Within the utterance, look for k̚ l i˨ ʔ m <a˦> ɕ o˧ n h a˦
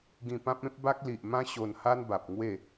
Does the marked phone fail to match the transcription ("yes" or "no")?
yes